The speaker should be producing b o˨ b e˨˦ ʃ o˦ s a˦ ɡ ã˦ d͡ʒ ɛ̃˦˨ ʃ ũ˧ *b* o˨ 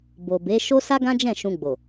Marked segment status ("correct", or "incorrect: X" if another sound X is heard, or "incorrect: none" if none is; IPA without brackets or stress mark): incorrect: ɡ͡b